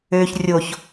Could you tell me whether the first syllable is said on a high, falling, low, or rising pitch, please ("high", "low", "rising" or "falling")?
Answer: low